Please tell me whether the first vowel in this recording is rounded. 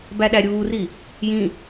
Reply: no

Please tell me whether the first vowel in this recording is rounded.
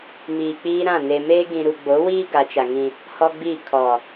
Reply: no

